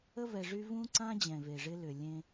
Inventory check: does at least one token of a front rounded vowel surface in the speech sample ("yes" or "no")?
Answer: yes